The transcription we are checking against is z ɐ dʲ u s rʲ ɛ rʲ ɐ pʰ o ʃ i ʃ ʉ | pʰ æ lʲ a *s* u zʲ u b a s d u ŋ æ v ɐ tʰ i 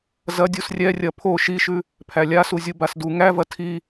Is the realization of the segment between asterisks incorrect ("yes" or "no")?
no